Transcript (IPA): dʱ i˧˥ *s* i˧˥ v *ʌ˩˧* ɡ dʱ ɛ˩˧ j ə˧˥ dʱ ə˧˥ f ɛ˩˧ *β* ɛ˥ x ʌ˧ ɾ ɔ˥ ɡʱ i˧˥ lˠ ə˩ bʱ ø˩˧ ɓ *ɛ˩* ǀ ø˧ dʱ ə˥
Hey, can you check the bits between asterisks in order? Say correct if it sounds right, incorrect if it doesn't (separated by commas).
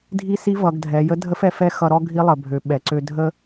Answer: correct, correct, incorrect, correct